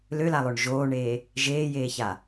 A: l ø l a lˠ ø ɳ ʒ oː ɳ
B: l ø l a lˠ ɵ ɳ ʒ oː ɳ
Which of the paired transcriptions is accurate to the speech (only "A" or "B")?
A